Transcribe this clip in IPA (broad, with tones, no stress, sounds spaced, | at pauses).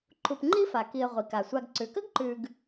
ǃ u˨ p ŋ͡ǃ i˥ f a˩ k i˨ ə̯ ʁʷ i˩ k a˩ sʷ a˨ ɡ ǀ ʉ˩ k ə˥ ɡ ǃ ʉ˨ ɡ